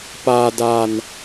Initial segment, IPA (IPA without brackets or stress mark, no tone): p